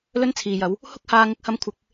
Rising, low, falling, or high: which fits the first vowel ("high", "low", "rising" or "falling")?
high